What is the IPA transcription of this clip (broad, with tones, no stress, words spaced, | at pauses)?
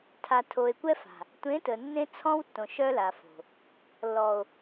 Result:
tʰa˨tʰo˨e̯kʷɛ˦fa̤˨ | tʷẽ˨˦tə˨ nːẽ˦t͡sʰɔ̃˦wtːõ˨ ʃœ˦la˨fo̤˨ | lːɔ˨o̯